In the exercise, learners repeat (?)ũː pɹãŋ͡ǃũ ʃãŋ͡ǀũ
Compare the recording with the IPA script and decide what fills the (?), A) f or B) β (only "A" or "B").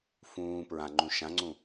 A